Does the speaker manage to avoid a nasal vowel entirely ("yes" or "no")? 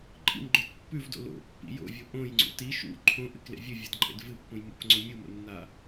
no